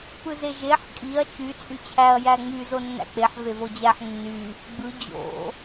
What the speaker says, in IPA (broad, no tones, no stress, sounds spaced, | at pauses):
p ɯ z e ʒ e ħ kʼ i ɐ̯ t͡ʃ y t͡sʼ y t͡ɕʰ æ ɐ̯ j æ ŋ͡m y z o nː æ̰ k͡p e ħ v e v o d͡ʑ æ ħ nː y | ɡ͡b ɯ d͡ʑ o̰